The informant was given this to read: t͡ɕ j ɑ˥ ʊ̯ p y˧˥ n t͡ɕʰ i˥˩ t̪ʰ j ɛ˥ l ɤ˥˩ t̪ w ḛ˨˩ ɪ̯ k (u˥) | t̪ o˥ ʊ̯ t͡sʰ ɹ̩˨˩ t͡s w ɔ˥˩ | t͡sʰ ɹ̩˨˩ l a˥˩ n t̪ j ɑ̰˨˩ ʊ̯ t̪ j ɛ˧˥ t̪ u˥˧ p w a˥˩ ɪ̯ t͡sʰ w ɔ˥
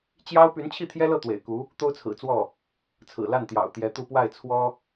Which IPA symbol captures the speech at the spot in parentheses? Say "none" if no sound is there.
u˧˥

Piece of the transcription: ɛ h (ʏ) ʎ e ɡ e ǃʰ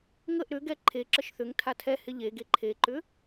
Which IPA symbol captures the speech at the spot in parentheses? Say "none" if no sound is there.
ɪ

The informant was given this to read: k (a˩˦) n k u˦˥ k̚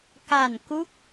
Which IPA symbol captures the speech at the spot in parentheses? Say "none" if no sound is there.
a˨˩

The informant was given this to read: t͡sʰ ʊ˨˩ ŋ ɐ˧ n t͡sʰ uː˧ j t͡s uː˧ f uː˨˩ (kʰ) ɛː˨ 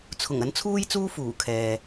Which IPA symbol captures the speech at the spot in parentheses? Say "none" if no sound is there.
kʰ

